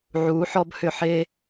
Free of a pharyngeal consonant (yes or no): no